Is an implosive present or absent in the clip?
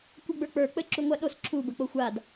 present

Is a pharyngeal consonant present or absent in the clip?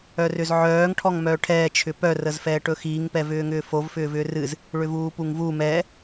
present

